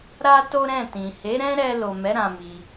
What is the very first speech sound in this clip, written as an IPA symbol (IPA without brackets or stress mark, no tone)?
ɾ